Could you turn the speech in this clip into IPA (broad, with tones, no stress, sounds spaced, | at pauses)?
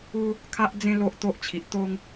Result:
u˦ | kʰ a˦ ʔ d͡z ẽ˦ l o˦ ʔ t̪ o˦ ʔ t͡ɕʰ i˨ ʔ t̪ o˦ ŋ